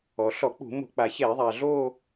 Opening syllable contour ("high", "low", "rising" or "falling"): low